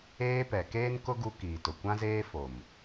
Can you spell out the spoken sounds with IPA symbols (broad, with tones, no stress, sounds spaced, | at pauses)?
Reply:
eː˦ p ɛ˨ k eː˦ n k ʊ˦ ɡ u˦ k iː˨ t ʊ˨ kʷ ã˦ z eː˦ f o˨ m